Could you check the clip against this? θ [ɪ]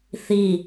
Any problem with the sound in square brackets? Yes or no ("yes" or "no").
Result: yes